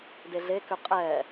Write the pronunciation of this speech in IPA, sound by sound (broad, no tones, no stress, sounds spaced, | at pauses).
d e ɮ e k ʏ qʼ ɛ